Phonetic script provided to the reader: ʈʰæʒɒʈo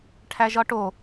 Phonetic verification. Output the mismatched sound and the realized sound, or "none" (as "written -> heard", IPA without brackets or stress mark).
none